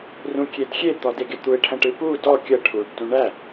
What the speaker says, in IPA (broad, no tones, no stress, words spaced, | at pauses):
rũkʲedxʲe t̪ɔdeɡet̪ue̯ ʈʰɐ̃ʈɨpu dɔ kʲɐ ʈʰuɖ tũɳæ